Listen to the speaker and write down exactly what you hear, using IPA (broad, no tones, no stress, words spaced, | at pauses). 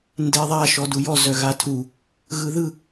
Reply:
ndeðˤa ʃɔdujɔ zœɣatʰu | ɣɯðɯ